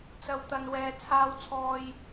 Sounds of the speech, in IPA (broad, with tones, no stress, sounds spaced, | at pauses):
t͡s ɐ˨ w t̪ ɐ˨ n w ɛː˨ t͡sʰ aː˧ w t͡sʰ ɔː˧ j